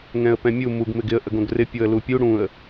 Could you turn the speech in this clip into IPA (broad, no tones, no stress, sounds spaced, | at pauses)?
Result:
ŋ ɛ̃ ə̯ p ɛ̃ mʲ u m u ɡ m ɪ ɡ ɪ ə̯ ʔ ə ɡ õ ɡ r ɪ pʲ o ə̯ l u pʲ u ɽ ũ ə̯